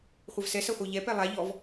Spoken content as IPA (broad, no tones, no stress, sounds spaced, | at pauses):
χʷ ɐ v s ɛ s ɐ χʷ ə˞ ʎ ɛ p ɛ lˠ a ʎ ɔ v